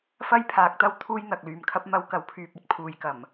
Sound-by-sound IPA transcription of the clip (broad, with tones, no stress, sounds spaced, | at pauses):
f ɐ˥ j pʰ aː˨ k̚ t̪ ɐ˥ w t̪ʰ uː˥ j n̪ ɐ˨ k̚ l yː˨ m kʰ ɐ˥ p̚ m ɐ˧ w k ɐ˨˥ w pʰ yː˨ p̚ ɐ˥ t̚ pʰ uː˨ j k ɐ˨˩ m